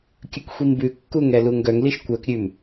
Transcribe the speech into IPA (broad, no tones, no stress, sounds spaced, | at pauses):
kʲ ɵ k xʷ i m b ʉ kː u ŋ ɛ l u ŋ ɡ œ ŋ l i ʃ kʷ œ k ɾʲ ʉ m